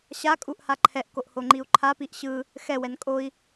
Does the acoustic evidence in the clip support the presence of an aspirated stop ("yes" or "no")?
yes